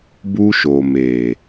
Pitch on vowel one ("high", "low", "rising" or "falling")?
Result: high